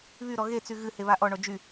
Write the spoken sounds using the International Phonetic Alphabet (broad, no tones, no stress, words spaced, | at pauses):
βyɾɔ ɣet͡sy ɣɨheβa ʔɔɳɔ d͡ʒy